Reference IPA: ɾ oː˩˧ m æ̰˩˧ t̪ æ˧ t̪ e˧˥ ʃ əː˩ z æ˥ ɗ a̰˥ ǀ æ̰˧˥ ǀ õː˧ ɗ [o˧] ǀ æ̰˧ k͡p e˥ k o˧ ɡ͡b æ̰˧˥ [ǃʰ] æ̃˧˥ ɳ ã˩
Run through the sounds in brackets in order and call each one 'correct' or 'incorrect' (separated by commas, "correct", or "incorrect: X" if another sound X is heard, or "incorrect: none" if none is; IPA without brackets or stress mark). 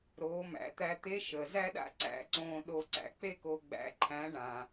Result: correct, correct